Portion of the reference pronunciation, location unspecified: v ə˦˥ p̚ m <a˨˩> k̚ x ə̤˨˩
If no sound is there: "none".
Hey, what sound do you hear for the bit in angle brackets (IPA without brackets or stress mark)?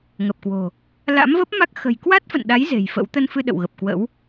a˦˥